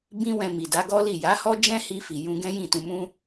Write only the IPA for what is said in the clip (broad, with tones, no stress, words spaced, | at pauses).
bĩ˦wɛ̃˧mi˨da˨˦ ɡɔ˦li˦˨ ja˨˦hɔ˦d͡ʒɛ̃˦hi˧ fi˨jũ˧ɡɛ̃˦ jĩ˦˨tũ˧mũ˦